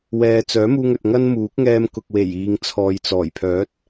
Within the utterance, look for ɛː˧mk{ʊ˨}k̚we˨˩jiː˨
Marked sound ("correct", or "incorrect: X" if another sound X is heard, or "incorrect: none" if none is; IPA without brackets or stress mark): correct